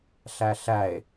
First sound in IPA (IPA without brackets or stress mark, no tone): ɬ